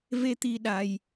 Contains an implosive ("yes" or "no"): yes